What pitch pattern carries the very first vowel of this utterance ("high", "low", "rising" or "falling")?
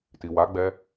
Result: low